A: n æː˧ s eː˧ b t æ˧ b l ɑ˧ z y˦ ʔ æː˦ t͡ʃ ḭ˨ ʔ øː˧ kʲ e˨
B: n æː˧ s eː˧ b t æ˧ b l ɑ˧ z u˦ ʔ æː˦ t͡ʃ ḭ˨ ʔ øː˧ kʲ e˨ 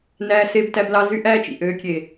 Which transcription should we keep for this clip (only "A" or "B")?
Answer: A